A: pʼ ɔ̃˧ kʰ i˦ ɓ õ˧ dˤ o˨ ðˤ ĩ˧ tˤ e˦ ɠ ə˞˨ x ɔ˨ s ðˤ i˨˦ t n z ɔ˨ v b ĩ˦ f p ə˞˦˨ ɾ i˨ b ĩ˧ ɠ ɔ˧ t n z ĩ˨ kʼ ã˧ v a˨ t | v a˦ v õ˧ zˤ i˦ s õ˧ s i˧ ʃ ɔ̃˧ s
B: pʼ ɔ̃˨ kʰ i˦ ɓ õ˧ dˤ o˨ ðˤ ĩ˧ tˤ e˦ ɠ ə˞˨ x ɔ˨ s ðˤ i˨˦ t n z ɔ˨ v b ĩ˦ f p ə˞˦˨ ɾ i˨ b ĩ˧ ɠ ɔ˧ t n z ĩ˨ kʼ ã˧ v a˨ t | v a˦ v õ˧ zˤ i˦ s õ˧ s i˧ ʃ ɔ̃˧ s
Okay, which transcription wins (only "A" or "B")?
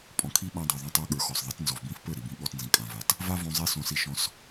B